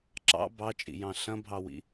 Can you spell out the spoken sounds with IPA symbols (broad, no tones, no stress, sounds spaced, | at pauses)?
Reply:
ǁ ɑ̰ b ɑ t͡ʃʼ ḭ j ɑ̃ ɬ ɐ̃ bʱ ɑ w ḭ